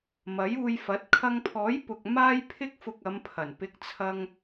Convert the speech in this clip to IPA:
mɐ˨˥juː˧jfɐ˨˥t̚ kʰɐ˧ŋpʰɔː˨˥j pʊ˨k̚ maː˥jpʰɪ˥k̚fʊ˧k̚ ɐ˨˧mpʰɐ˨˩n pɪ˨˥k̚t͡sʰɐ˧ŋ

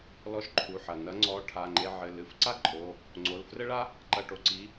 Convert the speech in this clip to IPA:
lɔ˧ʃǃʰu˩˧˩ħɐ˩ nɐ˨˥ŋ͡ǀɔ˨˥ ʈʰa˩˧˩ŋ͡ǃe˧ʕɘ˩˧˩ lɨ˩˧˩f ǀa˥ ǃʼo˩˧˩ | ŋ͡ǀo˩˧˩l frɘ˥ɭa˥ | ǃɐ˧ʈo˩ǀi˨˥

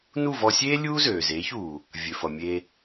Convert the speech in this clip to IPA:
nu˥˩vɔ˧sʲeː˥ lʲuː˥zøː˩zeː˩˥çuː˩ | vʲø˩ fʌ˩ mʲe˧

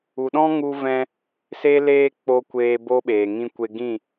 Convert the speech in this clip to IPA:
u˨ɗɔ̃˦ŋu˧vɛ̃˧ | se˦leː˦ k͡po˧kʷeː˧ bo˦ɓeː˨ ŋĩ˧kʷe˧ɡĩ˦˨

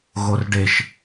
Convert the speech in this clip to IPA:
ɣorɖeʃ

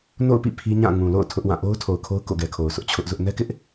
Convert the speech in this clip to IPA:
no̰˦˨ʊ̯pḭ˦˨ pʰi˦ɲã˦˨ ŋũ˨lo̰˦˨ʊ̯ tʰʊ˦ʔwã˦˨ ʔo˦ʊ̯tʰo˨ʊ̯kʰo˦ʊ̯ ko̰˦˨ɡɛ˨kʰo˨ʊ̯ sʊ˦ʔt͡ɕʰʊ˦ʔzʊ˦ʔ nɛ˦kɪ˦ʔ

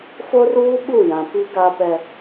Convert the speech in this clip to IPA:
fo˦ruː˦ ɓu˦˨jã˨ pi˦ɡa˦ pɛ˦

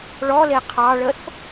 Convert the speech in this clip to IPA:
ɭɔle qʰɑɭəθ

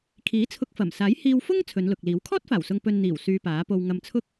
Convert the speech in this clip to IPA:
kʰiː˨˥t͡sʰʊ˧k̚fɐ˨˩msaː˨˥j hiː˧wfʊ˥ŋ t͡sʰɵ˨˧nlʊ˨k̚liː˨˥w kʰɔː˥t̚faː˨˩wsʊ˨ŋ pɵ˨n n̪iː˨˩w syː˧paː˨˥po˧w ŋɐ˧mt͡sʰʊ˥k̚

